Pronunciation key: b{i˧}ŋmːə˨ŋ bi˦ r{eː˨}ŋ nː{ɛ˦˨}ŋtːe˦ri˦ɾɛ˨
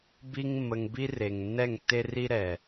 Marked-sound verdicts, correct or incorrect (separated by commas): correct, incorrect, correct